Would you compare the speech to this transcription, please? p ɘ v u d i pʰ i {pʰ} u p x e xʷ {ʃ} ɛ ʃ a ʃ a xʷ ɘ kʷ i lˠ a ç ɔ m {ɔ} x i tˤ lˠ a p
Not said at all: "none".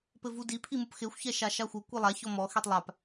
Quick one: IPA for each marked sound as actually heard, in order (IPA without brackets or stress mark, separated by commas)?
m, ç, ɔ